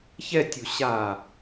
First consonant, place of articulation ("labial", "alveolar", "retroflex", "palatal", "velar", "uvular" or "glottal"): palatal